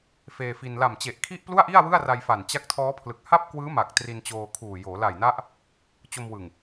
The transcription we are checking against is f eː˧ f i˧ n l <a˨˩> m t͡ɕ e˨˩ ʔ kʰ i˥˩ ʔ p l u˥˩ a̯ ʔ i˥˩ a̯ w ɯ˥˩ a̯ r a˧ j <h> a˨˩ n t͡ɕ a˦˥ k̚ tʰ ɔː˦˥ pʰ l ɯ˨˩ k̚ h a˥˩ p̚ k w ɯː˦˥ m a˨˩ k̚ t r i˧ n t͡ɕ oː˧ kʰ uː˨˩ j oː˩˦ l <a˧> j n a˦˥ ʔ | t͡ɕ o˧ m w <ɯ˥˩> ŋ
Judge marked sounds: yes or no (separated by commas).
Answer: yes, no, no, no